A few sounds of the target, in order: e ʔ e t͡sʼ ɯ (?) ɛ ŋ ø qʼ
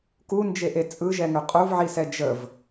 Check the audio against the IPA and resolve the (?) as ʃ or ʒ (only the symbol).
ʒ